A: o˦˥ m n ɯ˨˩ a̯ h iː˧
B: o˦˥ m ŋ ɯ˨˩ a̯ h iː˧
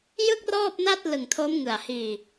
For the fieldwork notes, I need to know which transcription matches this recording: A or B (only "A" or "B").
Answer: B